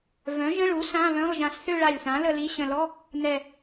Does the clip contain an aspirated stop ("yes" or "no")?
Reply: no